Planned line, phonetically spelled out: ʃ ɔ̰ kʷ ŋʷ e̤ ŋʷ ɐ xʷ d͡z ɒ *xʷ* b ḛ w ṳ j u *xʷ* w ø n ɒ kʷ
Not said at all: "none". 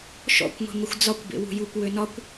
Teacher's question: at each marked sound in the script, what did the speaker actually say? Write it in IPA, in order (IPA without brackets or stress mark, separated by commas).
kʷ, kʷ